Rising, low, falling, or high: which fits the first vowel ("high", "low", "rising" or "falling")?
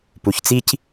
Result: low